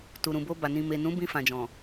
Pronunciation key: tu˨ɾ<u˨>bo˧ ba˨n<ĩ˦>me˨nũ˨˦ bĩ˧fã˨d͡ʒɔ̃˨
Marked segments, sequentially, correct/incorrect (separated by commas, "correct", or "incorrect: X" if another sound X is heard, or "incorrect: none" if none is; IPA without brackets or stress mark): incorrect: ũ˨, incorrect: ĩ˨